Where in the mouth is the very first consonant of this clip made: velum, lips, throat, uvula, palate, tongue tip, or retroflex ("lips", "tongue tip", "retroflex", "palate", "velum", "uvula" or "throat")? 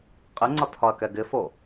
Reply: uvula